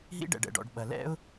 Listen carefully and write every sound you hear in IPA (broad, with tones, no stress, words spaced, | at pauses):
ɦḭ˧ɖɛ̰˩ɖɛ̰˩ɖɔ̰˩ɖ ɓɐ˩ lɛ̰˧ʊ̯